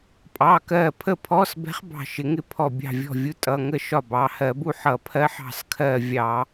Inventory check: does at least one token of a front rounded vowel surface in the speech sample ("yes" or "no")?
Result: no